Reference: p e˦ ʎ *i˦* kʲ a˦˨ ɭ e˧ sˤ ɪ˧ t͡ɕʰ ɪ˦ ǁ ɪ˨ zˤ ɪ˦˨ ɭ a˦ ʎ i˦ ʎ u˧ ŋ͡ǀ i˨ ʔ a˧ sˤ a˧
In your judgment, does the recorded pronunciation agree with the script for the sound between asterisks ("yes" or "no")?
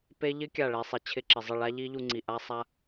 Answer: no